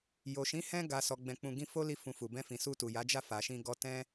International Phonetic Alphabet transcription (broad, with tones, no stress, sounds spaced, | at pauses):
j o˨ ʃ ĩ˨˦ h ɛ̃˧ ɡ a˨ s ɔ˨ ɡ͡b ɛ̃˨ k͡p ũ˨ ɡ ĩ˧ f o˦ l i˧ f ũ˨ f u˨ b ɛ̃˧ f ĩ˨ s u˧ t u˨ j a˨˦ d͡ʒ a˦˨ f a˨ ʃ ĩ˧ ɡ ɔ˧ t ɛ̃˦